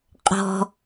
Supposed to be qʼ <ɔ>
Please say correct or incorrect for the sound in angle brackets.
incorrect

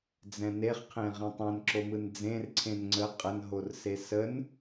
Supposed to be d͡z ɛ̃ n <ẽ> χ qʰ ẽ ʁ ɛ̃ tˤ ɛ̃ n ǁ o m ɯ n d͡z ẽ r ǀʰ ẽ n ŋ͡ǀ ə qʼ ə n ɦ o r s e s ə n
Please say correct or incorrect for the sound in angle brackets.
incorrect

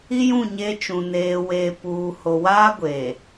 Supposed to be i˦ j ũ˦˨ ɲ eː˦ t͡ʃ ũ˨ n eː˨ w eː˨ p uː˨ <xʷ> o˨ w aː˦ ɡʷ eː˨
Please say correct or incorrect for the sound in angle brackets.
incorrect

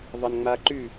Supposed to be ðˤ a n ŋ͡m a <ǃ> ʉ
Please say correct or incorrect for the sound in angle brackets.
correct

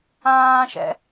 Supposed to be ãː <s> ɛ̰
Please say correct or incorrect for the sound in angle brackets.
incorrect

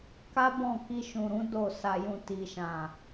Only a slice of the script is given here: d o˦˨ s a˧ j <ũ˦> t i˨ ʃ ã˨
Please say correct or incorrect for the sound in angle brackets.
incorrect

